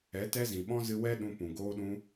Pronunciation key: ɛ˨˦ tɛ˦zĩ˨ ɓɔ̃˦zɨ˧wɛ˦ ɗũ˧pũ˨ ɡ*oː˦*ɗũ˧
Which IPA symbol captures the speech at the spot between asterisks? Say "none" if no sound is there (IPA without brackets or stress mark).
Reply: oː˧